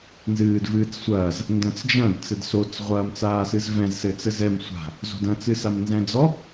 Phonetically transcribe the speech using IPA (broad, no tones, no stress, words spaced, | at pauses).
nzɨːdvɨːt͡ssʷɐːz | ndɐ̃t͡sd͡ʒɐ̃d t͡sɘdsot͡s ʁʷɐːmt͡saːsɨzvɛ̃z sɘt͡sɘzɛm sʷa̤ | zo̤dɐ̃ t͡sɨsamnzɛ̃d͡zɔ